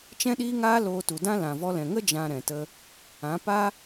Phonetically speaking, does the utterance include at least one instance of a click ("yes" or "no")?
no